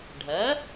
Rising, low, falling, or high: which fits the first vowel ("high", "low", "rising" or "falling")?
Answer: rising